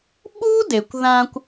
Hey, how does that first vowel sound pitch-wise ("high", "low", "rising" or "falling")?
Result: high